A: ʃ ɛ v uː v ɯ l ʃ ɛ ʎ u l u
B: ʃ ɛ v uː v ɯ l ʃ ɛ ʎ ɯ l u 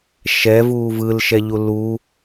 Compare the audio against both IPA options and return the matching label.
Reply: A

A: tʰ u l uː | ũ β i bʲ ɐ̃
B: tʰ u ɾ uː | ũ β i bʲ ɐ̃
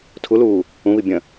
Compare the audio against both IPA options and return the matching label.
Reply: A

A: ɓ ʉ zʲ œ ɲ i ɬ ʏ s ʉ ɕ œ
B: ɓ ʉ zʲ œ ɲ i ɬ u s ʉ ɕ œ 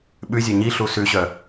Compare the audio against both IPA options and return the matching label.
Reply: B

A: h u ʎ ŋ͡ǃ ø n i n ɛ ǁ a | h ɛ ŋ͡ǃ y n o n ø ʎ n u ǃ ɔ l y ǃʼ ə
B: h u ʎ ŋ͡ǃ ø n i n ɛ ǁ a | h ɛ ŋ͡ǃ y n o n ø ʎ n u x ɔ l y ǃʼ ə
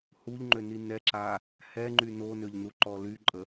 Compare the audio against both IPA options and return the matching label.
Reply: A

